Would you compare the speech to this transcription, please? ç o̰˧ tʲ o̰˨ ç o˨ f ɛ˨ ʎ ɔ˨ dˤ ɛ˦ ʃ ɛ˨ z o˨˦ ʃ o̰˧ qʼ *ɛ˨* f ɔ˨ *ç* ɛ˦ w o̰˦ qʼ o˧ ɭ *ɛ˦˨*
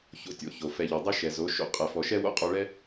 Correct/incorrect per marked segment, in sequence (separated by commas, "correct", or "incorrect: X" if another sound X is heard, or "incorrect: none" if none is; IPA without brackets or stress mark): correct, incorrect: ʃ, incorrect: ɛ˦